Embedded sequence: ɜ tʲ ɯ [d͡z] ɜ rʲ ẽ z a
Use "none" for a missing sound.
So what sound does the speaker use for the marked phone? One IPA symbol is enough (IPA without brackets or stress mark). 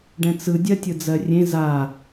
d͡z